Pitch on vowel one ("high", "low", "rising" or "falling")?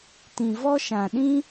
low